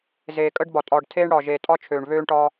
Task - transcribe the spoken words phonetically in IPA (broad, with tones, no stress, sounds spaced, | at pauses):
z eː˨ kʼ əː˦ ɖ b ɒ˨ tʼ ɒː˨ ɖ tʰ eː˦ ɳ ɽ ɒː˨ ʒ eː˨ tʼ ɒ˦ t͡ʃʰ øː˨ ɳ β øː˦ ɳ ʈ ɒː˦